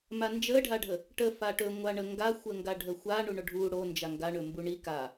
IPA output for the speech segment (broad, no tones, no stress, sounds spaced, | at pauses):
m a n d͡ʒ ə ɖʱ a ɖʱ ə | ʈ ə f a ʈ ɵ ŋʷ a ɳ ə ŋ ɡ a xʷ ə ŋ ɡ a ɖʱ ə xʷ a ɳ u ɳ o ɖʱ u ɽ o n d͡ʒ a ŋ ɡ a ɳ ɵ m b u ɳ i k a